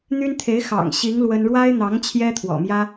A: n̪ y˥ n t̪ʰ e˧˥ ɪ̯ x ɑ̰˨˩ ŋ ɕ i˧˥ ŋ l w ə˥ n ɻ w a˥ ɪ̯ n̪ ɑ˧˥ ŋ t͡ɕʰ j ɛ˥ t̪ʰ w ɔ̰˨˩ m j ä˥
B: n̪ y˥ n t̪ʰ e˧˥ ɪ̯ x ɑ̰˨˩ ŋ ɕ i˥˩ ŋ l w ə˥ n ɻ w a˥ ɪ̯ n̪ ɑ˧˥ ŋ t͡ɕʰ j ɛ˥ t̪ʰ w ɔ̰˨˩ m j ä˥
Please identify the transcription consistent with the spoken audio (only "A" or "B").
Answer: A